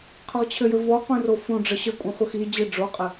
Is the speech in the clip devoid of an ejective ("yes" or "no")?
no